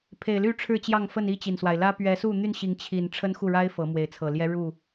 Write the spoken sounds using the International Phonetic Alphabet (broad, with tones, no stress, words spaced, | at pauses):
pʰe˨˩ɪ̯ly˥˨ ʈ͡ʂʰɻ̩˥˨t͡ɕjɑ˥˨ŋfə˥˨n i˥˨t͡ɕi˩nswa˩ɪ̯lä˦ pɥɛ˨˦su˥˨n̪y˥˨nɕi˨˦ŋ t͡ɕʰi˨˩n ʈ͡ʂʰə˦nxu˥˨ɻa˦ɪ̯ fɤ˨˦mwe˨˦ɪ̯t͡sʰɤ˨˩ljɛ˦ ɻu˥˨